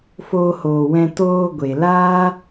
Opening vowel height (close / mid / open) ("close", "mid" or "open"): mid